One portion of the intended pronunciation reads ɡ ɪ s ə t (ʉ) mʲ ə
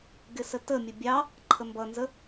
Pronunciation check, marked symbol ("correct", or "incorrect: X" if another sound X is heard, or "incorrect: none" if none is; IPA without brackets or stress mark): incorrect: ə